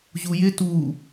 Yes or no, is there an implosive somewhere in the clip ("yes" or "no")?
no